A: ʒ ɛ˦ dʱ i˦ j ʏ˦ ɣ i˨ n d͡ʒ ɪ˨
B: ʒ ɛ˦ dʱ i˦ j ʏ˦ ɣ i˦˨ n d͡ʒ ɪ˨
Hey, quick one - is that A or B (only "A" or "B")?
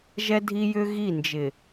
B